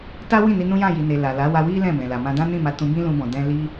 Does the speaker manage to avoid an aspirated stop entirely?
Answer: yes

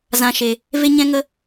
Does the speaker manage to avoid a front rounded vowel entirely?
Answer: yes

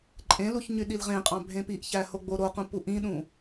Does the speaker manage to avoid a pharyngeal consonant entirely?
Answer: yes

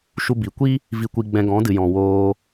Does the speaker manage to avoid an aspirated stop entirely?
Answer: yes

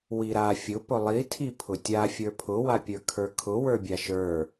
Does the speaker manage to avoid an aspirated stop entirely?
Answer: no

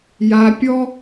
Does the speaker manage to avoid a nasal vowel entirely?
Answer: yes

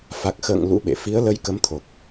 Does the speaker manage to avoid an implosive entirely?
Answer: no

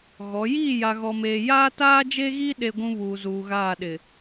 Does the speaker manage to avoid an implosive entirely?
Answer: no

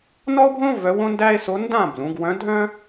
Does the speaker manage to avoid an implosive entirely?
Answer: yes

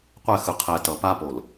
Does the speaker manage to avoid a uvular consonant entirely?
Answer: no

